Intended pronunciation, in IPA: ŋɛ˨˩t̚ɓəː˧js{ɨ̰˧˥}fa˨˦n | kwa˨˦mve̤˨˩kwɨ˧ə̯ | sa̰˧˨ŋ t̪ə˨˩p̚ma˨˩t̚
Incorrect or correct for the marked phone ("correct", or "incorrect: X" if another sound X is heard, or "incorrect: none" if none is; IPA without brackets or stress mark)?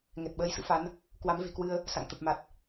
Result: correct